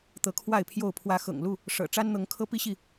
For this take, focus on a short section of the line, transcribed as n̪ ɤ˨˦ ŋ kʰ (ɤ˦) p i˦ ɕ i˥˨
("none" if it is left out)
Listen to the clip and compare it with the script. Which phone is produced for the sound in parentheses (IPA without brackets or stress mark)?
ɤ˦